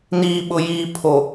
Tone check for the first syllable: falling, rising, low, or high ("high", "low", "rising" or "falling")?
low